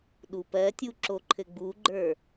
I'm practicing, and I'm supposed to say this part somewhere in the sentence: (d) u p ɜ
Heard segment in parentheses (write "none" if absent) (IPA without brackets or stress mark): ɗ